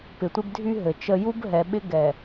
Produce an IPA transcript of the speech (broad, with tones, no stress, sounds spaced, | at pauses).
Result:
p ɪ˨ tʷ ɪ˦ b dʱ y˦ ɦ ɘ˨ t͡ʃ ə˦ j u˦ b ɦ ɛ˨ ɓ ɪ˦ ɡ ɛ˨